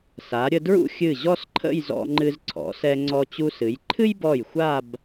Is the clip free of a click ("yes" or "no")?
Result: no